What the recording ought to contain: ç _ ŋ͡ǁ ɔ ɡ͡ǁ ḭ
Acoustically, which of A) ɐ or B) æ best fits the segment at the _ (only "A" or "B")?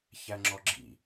B